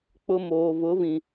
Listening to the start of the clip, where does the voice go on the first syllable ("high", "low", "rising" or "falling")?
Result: high